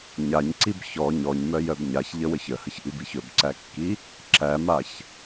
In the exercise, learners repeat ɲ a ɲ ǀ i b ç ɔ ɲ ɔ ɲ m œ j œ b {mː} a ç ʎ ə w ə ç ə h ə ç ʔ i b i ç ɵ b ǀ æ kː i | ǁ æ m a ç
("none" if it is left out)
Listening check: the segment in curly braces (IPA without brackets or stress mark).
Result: ɲ